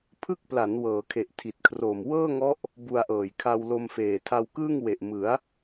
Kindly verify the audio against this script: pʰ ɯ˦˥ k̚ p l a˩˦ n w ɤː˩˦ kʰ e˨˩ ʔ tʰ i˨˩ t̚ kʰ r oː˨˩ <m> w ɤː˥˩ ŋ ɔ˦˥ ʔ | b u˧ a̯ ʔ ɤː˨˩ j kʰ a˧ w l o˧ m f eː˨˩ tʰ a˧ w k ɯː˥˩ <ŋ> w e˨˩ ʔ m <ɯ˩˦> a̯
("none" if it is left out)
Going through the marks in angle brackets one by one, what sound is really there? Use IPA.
m, ŋ, ɯ˩˦

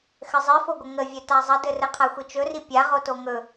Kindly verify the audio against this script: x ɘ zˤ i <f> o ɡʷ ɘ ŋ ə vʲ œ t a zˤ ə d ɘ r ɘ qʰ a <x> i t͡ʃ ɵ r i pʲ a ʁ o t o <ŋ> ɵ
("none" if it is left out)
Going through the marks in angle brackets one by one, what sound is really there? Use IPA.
f, xʷ, ŋ

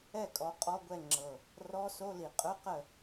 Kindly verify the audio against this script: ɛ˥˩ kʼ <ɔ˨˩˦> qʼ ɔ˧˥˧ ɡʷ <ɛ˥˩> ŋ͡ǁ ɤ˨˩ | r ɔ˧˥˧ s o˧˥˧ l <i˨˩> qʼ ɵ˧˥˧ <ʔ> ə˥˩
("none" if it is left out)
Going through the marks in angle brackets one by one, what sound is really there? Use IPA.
ɔ˨˩˦, ɛ˥˩, i˨˩, q

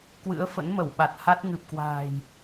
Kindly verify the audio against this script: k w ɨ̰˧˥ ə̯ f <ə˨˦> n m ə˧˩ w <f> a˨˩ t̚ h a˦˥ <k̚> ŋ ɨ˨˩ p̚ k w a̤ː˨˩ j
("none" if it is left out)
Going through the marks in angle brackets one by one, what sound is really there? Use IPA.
ə̰˧˥, ɓ, t̚

